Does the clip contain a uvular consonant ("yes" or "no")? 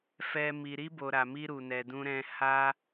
no